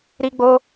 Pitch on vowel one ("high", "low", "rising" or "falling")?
high